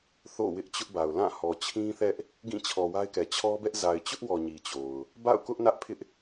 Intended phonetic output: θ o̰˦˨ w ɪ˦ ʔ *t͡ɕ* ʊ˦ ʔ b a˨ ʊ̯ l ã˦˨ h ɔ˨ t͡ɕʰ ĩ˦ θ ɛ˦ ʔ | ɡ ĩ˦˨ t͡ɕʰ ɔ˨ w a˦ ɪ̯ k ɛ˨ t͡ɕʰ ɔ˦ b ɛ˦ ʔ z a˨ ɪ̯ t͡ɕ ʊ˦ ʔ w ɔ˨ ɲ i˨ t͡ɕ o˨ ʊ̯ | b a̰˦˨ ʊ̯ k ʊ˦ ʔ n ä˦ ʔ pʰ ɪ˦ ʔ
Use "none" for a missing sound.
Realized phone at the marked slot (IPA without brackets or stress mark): t͡ɕ